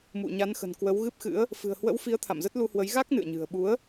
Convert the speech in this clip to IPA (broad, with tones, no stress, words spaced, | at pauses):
mṵ˧˨ɲa˨˦nxə̤˨˩n kwə˨˦wɣɨ˦˥p̚xɨ̰˧˥ə̯ | fɨ̤˨˩ə̯hwə̰˧˥wfi˨˦ə̯ t̪ʰa̰˧˨mzə˦˥t̚lu˧hwə˨˦j ɣa˦˥k̚nɨ̰˧˨ə̯ɲɨ̤˨˩ə̯ɓu˨˦ə̯